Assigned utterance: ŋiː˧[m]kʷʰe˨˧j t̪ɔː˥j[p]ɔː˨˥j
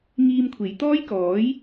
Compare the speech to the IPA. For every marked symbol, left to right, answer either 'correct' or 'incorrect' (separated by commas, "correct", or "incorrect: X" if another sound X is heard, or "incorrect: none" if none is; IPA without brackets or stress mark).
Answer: correct, incorrect: k